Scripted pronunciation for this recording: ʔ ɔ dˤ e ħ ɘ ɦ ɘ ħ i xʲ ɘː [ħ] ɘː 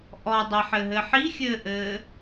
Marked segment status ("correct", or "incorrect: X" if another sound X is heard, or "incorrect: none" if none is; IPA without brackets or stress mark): incorrect: ʔ